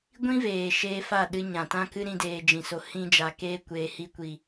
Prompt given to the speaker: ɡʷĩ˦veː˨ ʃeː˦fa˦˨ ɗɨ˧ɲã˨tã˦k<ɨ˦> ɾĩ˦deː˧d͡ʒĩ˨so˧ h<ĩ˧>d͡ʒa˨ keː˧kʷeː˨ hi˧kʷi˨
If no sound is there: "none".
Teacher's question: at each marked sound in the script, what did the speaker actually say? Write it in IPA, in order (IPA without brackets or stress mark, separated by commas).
ɨ˦, ĩ˧